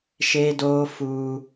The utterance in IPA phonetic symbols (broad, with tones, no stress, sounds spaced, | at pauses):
ʃ eː˦ d oː˦ f uː˦